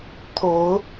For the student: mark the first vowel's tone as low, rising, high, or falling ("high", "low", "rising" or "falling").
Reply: rising